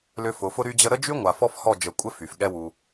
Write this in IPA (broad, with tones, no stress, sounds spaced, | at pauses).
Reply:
l ʏ˧ f ʊ˨˦ f ʊ˦ ɾ y˦ d͡ʑ ə˦ ɾ ə˦ d͡ʒ y˦ ŋʷ a˨ f ɔ˦ f h ɔ˦˨ d͡ʒ ə˨˦ kʷʼ ɪ˦ f y˨ f ɠ ɛ˦ w u˧